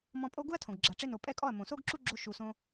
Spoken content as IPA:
m ɔ̃˧ pʼ o˦ ɡ u˦ ɐ̯ tʰ õ˨ ɡ ɡ͡ǁ a˨ ʈ͡ʂ e˧ n o˨ pʼ ɛ˦˨ kʼ ɔ˦˨ ɐ̯ m õ˨ s o˦ ɡ ǁ u˦ ɡ͡ǁ o˧ ʃ u˨ s õ˧

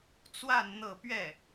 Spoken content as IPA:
t͡s w a˥˧ n n̪ ɤ˥˧ p ɥ ɛ˥˩

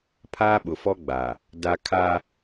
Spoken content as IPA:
pʰ aː˦ ɓ ʊ˨ f ɔ˦ ɡ͡b a˨ | d a˦ kʰ a˦

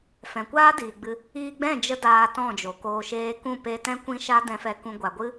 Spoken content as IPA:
f ɛ̃˨ kʷ aː˦ d iː˨ ɡ͡b ɨ˧ | iː˧ ɡ͡b ɛ̃˦˨ d͡ʒ ə˧ d aː˧ t ɔ̃˦˨ d͡ʒ o˨ k oː˧ ʃ eː˦ k ũ˦˨ p e˧ t ɛ̃˦ kʷ ĩ˦ ʃ a˦ d ɛ̃˧ f ɛ˧ k ũ˧ ɡʷ a˨ ɡʷ ɨ˦

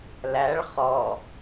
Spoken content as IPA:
l æ ɭ χ ɔ

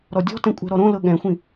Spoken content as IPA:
ɾ ɔ dʲ ɔ̤ t ɛ̃ kʷʼ ɛ̤ ɾ ɔ ɾ õ l ɤ ɠ ɛ̃ xʷ ĩ

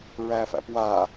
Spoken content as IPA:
ɹ æ f æ̰ p w a

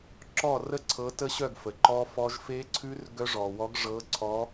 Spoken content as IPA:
ǁ ɔ˥˩ r ə˥˩ ǀʰ ɤ˨˥ t ə˦˥ ɕ œ˥˩ ɡ f ə˩ ǃ ɔ˦˥ f ɔ˦˥ ʒ f e˦˥ ǀʰ ʉ˦˥ r ɡ œ˦˥ ʐ ɔ˩ w ɔ˨˥ ɡ ʐ ɤ˨˥ ǀʰ ɔ˨˥

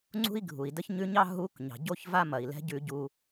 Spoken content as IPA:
ŋ͡ǀ ṳ˥ i̯ ɡʱ u˩ i̯ d ə˥ ç ɲ ʉ˧˥ ɲ ɑ˥ ɦ u˧˥ k ɲ ɑ̤˩ ɟ o˥ ç v a˥ m ɐ˩ i̯ l ɛ̤˧˥ ɟ ʉ˧ ɟ u˧

